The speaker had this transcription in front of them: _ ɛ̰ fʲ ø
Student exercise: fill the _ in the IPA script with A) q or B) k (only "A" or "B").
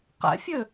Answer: A